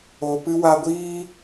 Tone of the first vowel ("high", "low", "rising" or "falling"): low